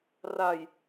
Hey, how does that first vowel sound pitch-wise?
low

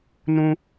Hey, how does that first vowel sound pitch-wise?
high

